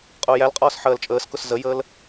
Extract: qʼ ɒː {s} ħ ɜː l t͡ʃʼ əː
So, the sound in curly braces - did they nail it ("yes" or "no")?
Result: yes